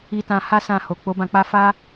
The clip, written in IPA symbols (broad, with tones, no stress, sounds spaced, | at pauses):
i˧ t ã˧ h a˦ s ã˧ h o˨ k͡p o˨˦ b ã˧ k͡p a˦ f a˦